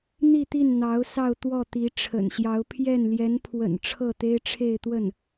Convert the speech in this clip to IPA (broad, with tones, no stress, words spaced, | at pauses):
n̪i˥˧t̪i˥˩n n̪ɑ˧˥ʊ̯ sɑ˥˧ʊ̯t̪wɔ˥˩t̪i˧˥ ʈ͡ʂʰə̰˨˩nɕjɑ˧˥ʊ̯ pʰjɛ˥˩n ljɛ˧˥npʰwə̰˨˩n ʈ͡ʂʰɤ˥˩t̪e˥ɪ̯ʈ͡ʂʰe˥˧ɪ̯t̪wə˥˩n